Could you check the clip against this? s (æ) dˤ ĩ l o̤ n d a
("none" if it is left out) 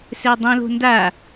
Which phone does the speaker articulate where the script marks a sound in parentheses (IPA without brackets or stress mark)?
ɛ